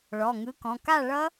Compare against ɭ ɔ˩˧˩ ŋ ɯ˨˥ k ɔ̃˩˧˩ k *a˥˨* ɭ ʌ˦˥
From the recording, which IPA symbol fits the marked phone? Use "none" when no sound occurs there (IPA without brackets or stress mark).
a˥˨